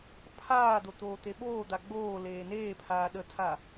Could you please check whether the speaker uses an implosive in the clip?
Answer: yes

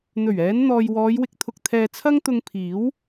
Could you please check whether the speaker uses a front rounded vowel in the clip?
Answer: no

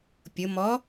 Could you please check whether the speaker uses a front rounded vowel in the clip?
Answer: no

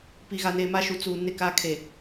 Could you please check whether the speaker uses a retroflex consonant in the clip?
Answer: no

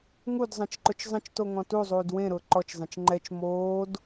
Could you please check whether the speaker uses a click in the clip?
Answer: yes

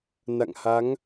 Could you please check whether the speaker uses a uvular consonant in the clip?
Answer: no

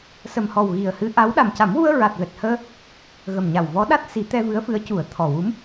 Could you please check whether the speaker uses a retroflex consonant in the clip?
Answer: no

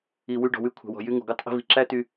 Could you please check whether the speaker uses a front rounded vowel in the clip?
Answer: yes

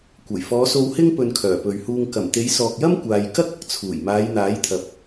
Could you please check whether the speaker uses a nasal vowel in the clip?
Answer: no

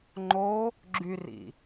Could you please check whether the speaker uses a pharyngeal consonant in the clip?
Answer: no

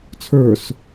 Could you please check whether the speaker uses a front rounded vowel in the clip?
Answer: no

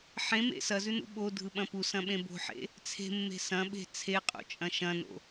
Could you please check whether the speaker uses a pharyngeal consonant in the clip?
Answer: yes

